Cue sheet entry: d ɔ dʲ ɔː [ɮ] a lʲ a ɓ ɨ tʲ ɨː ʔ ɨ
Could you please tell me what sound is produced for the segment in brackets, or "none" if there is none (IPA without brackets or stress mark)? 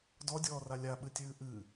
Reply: r